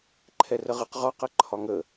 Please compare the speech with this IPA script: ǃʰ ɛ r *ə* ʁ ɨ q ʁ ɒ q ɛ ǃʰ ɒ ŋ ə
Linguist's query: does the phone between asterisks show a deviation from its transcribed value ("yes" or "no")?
no